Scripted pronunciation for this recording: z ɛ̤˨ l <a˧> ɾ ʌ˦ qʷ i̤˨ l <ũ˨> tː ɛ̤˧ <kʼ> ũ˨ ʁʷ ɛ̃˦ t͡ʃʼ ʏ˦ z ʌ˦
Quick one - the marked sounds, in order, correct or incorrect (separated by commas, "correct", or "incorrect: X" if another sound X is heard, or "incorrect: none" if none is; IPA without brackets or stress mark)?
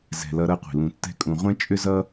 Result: incorrect: ʌ˧, incorrect: ũ˧, correct